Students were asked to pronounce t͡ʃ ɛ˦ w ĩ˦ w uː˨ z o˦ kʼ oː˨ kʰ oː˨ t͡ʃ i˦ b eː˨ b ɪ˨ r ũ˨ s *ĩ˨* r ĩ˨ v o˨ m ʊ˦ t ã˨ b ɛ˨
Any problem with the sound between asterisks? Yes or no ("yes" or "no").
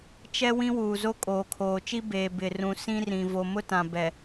yes